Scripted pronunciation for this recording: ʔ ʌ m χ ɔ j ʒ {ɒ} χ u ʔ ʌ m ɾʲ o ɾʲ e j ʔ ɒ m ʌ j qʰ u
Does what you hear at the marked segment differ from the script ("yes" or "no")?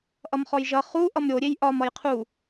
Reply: yes